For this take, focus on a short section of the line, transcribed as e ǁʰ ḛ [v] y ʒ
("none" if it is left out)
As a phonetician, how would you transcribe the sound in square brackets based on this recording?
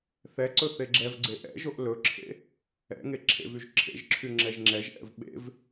v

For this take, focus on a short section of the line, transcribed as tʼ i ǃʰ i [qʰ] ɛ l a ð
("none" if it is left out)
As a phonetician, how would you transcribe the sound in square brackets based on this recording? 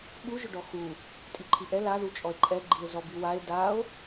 ʔ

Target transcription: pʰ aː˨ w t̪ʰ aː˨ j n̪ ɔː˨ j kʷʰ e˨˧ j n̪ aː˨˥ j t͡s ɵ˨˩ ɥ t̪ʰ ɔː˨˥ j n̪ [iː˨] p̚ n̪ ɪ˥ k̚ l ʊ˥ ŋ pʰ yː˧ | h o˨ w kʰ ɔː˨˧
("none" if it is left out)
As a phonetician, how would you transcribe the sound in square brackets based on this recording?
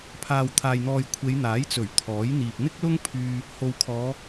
iː˨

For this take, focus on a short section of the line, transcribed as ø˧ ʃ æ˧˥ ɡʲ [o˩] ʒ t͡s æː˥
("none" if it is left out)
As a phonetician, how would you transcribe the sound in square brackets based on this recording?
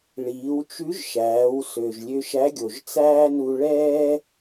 o˩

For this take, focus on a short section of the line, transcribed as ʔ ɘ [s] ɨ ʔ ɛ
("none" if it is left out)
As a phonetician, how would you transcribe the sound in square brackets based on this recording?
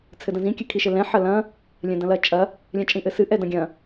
s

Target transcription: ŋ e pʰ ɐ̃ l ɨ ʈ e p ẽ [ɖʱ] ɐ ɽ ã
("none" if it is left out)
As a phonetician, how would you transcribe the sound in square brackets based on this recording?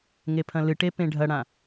ɖʱ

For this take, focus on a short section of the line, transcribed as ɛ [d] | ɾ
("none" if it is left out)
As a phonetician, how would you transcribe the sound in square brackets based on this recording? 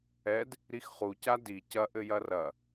d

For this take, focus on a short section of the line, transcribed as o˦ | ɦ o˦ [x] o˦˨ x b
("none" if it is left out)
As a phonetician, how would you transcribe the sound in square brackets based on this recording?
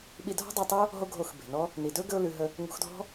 ɡʱ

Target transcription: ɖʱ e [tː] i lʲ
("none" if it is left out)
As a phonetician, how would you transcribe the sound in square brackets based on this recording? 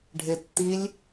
tː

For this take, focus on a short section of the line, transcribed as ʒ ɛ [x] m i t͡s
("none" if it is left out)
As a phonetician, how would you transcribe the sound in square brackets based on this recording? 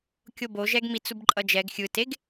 ɡ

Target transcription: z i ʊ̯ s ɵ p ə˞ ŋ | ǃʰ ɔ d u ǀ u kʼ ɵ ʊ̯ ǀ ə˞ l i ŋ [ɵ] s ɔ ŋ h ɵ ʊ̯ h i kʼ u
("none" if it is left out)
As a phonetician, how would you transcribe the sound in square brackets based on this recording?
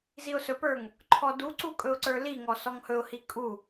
ɔ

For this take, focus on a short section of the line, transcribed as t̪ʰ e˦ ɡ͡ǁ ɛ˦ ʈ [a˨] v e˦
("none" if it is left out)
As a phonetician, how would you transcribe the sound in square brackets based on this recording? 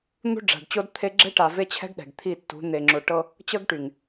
a˨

